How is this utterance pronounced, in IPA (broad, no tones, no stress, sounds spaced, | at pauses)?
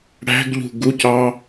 ɽ æ̤ ɡ ʎ ṳ ɡ u c ɑ